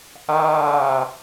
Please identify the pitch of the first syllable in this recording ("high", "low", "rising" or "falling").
falling